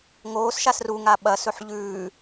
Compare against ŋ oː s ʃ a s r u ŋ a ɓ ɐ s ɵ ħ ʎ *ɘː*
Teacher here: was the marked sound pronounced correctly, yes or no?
no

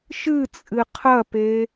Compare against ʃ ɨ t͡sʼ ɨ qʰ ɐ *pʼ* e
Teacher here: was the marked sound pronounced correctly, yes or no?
no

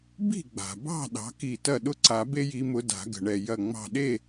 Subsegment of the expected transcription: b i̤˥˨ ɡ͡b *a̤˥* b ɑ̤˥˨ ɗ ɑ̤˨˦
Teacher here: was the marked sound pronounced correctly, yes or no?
no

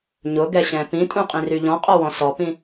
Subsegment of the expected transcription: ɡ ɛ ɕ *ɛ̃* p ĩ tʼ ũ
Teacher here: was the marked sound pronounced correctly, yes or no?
yes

